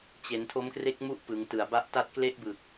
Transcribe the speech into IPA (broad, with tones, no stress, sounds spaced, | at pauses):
t͡ɕ e˩˦ n tʰ o˦˥ m k r e˦˥ k̚ m u˦˥ ʔ p ɯ˩˦ ŋ t ɯ˨˩ a̯ b a˦˥ ʔ t a˥˩ t̚ k l e˦˥ ʔ b ɯ˨˩ k̚